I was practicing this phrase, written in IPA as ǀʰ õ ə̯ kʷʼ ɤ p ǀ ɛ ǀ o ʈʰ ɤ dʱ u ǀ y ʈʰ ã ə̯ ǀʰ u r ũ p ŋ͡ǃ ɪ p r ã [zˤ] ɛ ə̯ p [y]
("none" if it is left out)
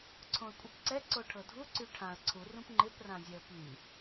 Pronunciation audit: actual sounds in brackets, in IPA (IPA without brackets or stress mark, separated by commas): zʲ, y